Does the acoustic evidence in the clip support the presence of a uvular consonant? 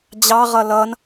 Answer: yes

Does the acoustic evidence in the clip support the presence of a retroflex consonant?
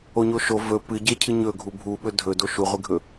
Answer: no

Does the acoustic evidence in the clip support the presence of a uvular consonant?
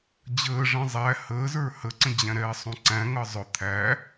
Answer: no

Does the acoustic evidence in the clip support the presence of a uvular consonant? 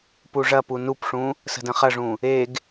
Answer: yes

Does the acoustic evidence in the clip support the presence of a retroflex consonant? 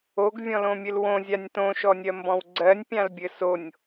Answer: no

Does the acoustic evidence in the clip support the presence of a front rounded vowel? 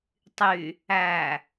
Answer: yes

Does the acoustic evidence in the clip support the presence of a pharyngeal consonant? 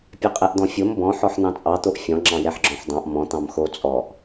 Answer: yes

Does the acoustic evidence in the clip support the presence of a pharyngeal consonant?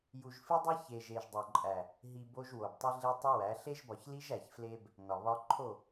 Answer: no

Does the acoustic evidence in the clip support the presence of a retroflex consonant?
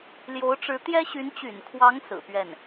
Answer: yes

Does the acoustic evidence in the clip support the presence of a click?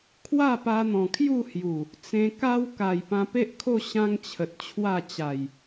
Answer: no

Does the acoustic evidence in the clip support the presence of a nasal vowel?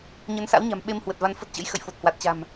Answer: no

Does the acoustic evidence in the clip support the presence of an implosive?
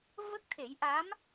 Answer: no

